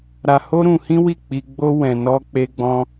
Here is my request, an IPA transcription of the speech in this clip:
ɾ a˧ h o˦ ɾ ũ˧ h ĩ˦ w i˦˨ k͡p i˧ ɡ͡b o˦ w ɛ̃˧ n ɔ˦ k͡p e˦ ɡ͡b ɔ̃˦

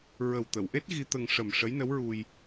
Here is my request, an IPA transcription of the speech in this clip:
ɹ ə˨˩ w t̪ ə˨˩˨ w ʔ e˦˥ t̚ ɣ i˧˥ t̪ ə˧ ŋ ʂ ə˨˩ m ʂ ə˧˥ j n ə˧˥ w ɹ u˧ j

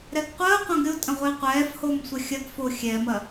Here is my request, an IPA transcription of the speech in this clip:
ɾ ɛ ɡ qʷ əː qʷ œ̃ ɡ ɾʲ o tʼ ə̃ ʁʷ e qʷ ɛː f h o m sʷ ɐ xʲ ɐ ɡ f o xʲ ɛ m ɐ

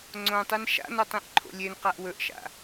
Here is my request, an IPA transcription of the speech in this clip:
ŋ͡ǀ õ tˤ i n ʃ a̰ n ɵ tˤ ĩ ʔ ǃʰ o̰ lʲ e n q a ʔ w ɵ ʔ ʃ a̰

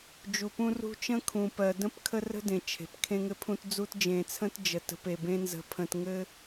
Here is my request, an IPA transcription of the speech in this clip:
d͡ʒ u˨ p ũ˦ r ṳ˦ t͡ʃ ə̃˥ kʰ ũ˨ p ɜ˨ d ə̃˥ p kʰ ə˥ r ə̤˥ d ẽ˨ t͡ʃʰ e̤˩ p kʰ ẽ˦ ŋ ɘ˦ pʰ ũ˦ t d͡z u˦ t d͡ʒ ẽ˨ t͡sʰ ə̃˥ t d͡ʒ ə˩ t ə̤˨ p e˩ b ẽ˦ n z ə̤˨ pʰ ə̃˨ t ŋ ɘ˦

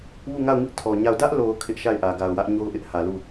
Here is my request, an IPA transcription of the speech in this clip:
w u˦˨ ŋ a˦˨ ʊ̯ ŋ ɪ˦ ʔ tʰ ɔ˨ ɲ a˦˨ ʊ̯ d ä˦ ʔ l o˨ ʊ̯ kʰ ɪ˦ ʔ ʃ a˦˨ ɪ̯ ʔ ä˨ ɡ a˨ ʊ̯ w ä˦ ʔ ɲ o˦ ʊ̯ ʔ ɪ˦ ʔ h ä˨ l u˦˨

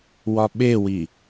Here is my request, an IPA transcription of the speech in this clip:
w ɒ ɓ e w i

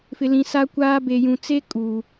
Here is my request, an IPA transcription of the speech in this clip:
f ɪ˨ l ĩ˨ s a˦ kʷ aː˦ b e˨ j ũ˨ t͡s e˦ kʼ u˨

